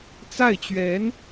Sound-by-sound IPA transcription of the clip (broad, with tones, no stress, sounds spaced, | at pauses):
t͡s a˥˩ ɪ̯ t͡ɕ ɥ ɛ˧˥ n